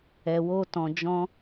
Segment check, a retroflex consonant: absent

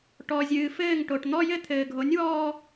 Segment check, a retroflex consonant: present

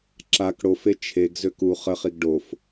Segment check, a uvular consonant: present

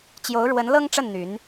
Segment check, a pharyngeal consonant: absent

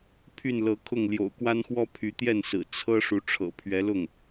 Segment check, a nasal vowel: absent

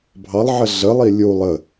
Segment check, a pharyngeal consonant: present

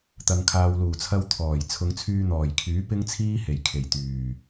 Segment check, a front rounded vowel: present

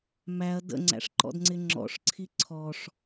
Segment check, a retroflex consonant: present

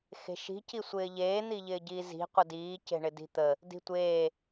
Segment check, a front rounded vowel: absent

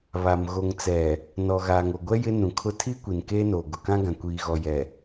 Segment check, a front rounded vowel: absent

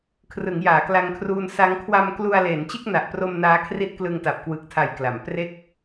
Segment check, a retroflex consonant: absent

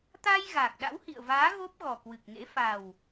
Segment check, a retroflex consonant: absent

